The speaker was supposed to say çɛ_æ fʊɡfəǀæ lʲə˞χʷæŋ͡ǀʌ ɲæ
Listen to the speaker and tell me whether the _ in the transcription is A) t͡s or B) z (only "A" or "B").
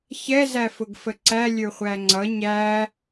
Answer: B